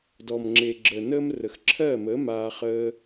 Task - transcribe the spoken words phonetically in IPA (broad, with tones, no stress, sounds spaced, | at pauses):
d ɔ˨ m ŋ͡ǁ e˨ ɡ͡ǁ ə˨ n əː˦ m r ə˨ x ǁʰ ɜː˦˨ m əː˨˦ m aː˦ χ əː˧